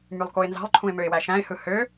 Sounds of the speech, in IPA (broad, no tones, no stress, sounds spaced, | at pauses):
m y lˠ k o ɪ̯ n z ɑ̤ lˠ ǃʰ ũ ɪ̯ m ø ɪ̯ w æ ʃ æ̃ ɪ̯ h ɯ h ø